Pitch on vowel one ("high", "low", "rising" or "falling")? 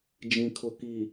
low